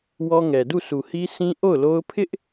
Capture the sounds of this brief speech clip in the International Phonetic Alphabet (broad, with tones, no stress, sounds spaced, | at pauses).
w ɔ˦ ŋ ɛ˨ d u˦˨ sʰ u˨ h i˦ s ĩ˦ ʔ o˦˨ ʊ̯ l o˦ ʊ̯ pʰ ɪ˦ ʔ